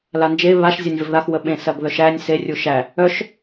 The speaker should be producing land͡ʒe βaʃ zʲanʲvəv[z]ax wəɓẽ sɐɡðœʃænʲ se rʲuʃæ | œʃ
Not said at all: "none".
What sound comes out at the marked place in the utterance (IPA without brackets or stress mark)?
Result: ð